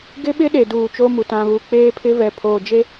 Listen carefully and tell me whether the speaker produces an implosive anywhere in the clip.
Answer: yes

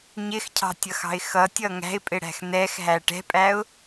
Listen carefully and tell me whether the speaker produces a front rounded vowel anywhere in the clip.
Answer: no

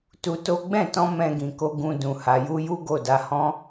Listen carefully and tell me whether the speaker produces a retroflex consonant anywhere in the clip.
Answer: no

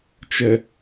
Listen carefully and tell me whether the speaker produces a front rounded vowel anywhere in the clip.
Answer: no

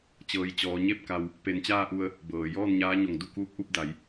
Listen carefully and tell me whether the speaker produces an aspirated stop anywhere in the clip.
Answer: no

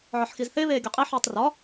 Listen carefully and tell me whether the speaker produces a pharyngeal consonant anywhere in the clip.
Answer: yes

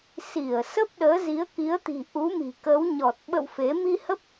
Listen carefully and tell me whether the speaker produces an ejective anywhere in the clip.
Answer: no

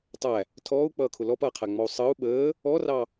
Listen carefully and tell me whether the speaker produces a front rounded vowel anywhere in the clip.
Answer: no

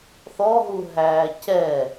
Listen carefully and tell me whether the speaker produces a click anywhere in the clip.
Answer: no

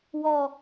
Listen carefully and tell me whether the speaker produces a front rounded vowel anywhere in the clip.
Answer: no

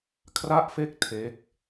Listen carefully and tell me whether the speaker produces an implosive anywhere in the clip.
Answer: no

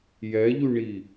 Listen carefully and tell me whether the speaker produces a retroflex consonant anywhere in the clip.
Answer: yes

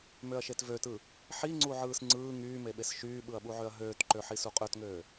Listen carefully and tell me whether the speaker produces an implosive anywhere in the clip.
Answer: yes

